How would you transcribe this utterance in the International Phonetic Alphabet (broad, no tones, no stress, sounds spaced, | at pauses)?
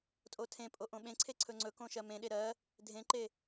tʼ o tʰ ẽ pʼ o ʔ õ ɓ ẽ ǀʰ e ǀʰ ɵ ŋ͡ǀ ɵ k õ ʃ ɜ m ẽ ɗ e ɾ ɜ | dʱ ẽ ǃ e